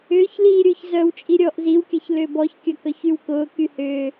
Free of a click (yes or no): yes